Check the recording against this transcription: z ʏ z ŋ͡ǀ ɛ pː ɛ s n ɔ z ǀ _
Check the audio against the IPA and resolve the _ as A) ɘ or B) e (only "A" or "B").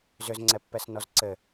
A